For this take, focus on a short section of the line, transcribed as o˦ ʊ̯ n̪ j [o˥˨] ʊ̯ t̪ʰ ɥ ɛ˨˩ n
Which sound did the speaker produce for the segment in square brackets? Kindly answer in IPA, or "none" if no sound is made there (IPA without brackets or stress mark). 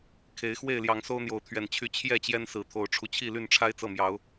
o˨˦